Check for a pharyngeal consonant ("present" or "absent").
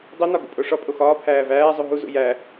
absent